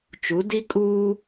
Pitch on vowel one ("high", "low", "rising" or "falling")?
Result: rising